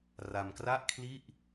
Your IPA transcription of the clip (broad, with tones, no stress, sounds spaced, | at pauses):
r a˧ m k r a˥˩ ʔ kʰ l i˥˩ ʔ